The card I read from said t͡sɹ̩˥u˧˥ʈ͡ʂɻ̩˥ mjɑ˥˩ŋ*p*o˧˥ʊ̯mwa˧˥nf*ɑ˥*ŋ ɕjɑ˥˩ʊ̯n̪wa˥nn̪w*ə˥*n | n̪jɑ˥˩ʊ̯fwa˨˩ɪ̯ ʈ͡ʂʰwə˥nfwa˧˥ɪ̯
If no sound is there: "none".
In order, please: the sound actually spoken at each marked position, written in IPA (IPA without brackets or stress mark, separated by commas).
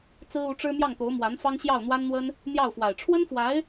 t̪, ɑ˥, ə˥